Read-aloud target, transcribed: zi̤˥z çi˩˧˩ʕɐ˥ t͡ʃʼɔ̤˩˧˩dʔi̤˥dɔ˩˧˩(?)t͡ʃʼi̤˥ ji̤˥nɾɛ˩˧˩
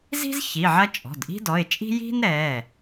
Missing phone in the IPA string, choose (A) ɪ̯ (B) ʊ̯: A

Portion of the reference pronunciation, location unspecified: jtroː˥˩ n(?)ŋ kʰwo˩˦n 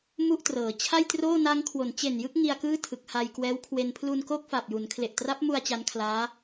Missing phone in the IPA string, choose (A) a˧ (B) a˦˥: B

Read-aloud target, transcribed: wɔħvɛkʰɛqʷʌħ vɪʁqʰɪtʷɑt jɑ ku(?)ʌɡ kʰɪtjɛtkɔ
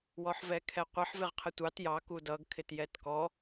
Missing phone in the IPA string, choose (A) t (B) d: B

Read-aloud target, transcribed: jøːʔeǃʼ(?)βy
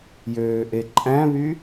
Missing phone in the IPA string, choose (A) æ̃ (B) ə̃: A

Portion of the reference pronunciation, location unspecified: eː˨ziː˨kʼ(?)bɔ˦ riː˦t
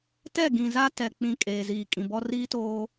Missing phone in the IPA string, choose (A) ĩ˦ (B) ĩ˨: B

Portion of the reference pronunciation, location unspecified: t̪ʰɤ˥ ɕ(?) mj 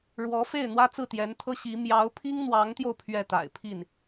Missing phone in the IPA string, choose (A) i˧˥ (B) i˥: A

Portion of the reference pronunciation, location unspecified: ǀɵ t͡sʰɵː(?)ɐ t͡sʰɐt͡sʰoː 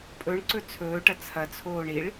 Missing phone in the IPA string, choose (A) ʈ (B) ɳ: A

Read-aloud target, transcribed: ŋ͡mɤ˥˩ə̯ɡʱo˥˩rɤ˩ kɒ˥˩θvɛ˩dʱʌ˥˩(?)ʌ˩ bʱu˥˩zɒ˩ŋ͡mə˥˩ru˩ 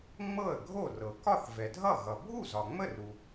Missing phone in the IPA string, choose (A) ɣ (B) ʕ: A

